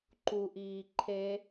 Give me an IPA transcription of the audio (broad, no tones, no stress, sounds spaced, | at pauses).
ǃ u ʔ iː ǃʰ e